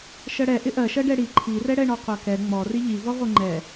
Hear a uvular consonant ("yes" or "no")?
yes